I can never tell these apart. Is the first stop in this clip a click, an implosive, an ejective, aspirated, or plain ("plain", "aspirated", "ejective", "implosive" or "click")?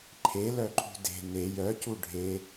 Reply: click